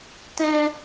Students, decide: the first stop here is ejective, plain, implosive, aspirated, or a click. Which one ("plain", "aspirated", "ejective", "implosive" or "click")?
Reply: plain